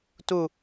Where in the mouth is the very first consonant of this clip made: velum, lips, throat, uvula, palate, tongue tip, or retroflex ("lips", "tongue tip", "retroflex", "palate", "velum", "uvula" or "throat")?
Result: tongue tip